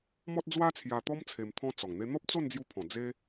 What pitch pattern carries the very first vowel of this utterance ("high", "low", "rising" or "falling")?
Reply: high